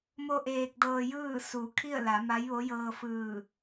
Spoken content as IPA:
m o˧ ʔ eː˧ k̚ d ɤː˧ j ɯː˥˨ s u˩˧ kʰ i˥˨ ə̯ l a˩˧ m a˧˥ j ʋ o˧˥ j ɤː˧ f ɯː˧˩

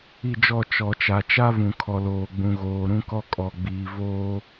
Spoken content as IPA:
i˦˨ d͡ʒ ɔ˦˨ t͡ʃ ɔ˨ t͡ʃ a˨ t͡ʃ a˦ v ũ˨ kʰ ɔ˨ l oː˨ ɡ͡b ũ˨ ɣ oː˨ ɾ ũ˦ k ɔ˦ kʼ ɔ˨ ɡ͡b iː˨ v oː˦

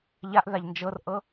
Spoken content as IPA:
ʎ a ʔ ð a ʎ n d͡ʒ ɤ r ʔ ɤ

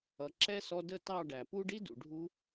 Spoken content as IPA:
ʌ˨ ǁ ɛ˦ s ɔ˧ d ə˦˨ t ɑ˦˨ ɖ æ˨ p u˦ ɖ i˦ d ṵ˨ ɖʱ u˦

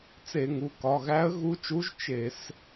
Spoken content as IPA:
t͡s e˧˩˧ ŋ u˩˧˩ k ɒ˩˧˩ ɣ æ˧˥ ə̯ ɣ u˧˥ t͡ʃ u˧˥ ʒ t͡ʃ e˧˩˧ s

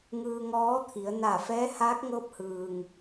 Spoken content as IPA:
ŋ ɯː˧ ŋ ɔː˧˥ t̪ʰ i˩˧ ə̯ n a˧˩ f ɛː˧˥ h aː˧˥ k̚ ŋ ɤː˧˥ p̚ h ɯː˩ ŋ

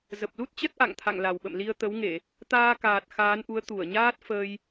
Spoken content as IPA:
z ə˨˩ p̚ l u˦˥ t̚ t͡ɕ ə˦˥ t̚ ʔ a̰˧˨ ŋ t̪ʰ a̰˧˨ ŋ l a˨˩ w ɓ ə̰˧˨ m l i˧ ə̯ t̪ ə˨˦ w ŋ e˧˩˨ | t̪ aː˧ k aː˨˩ t̚ x aː˨˦ n ʔ u˨˦ ə̯ t̪ u˧˩ ə̯ ɲ aː˦˥ t̚ f əː˧ j

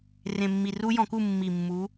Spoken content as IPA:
r ẽ˨˩ mː i˨˩ r u˦˥ j ɔ̃˧˩˧ k u˥˨ mː i˨˩ mː u˨˦

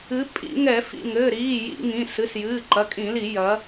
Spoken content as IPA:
ɨ˩˧ pʼ ḭ˧˩˧ ŋ ɛ˧˩˧ f ḭ˩˧˩ ŋ ɘː˩˧˩ ɾ iː˩˧˩ j ḭ˧˩˧ ŋ ĩ˩˧˩ s ɨ˩˧˩ s j ɨː˩˧˩ ǃ ɐ˩˧˩ kʼ ĩ˧˩˧ l i˧˩˧ j ɐ˩˧

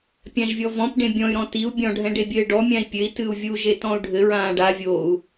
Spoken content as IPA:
pʲ ã ʒ vʲ ɔ v ɔ̃ p ɖ ẽ bʲ ɔ̃ y̯ ɾ ɔ̃ t i u̯ bʲ ɔ̃ ɖʱ ɛ̃ ɖ e bʲ ɘː ɖ ɔ mʲ ã i̯ pʲ ɘ i̯ t ɨ u̯ vʲ u ʒ e t ɔ̃ u̯ ɖʱ ɘ ɹ ãː ɖ a vʲ o u̯

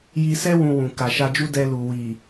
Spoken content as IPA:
j i˧ s ɛ˦ w ũ˧ w ũ˨ k a˨ ʃ a˧ d͡ʒ u˦ d ɛ˧ l u˨ w i˨

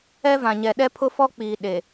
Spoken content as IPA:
ɛ˦ v ã˨ ɲ ɛ˨ ɗ ɛ˦ pʰ ʊ˦ f ɔ˦ k͡p iː˨ ɗ e˨

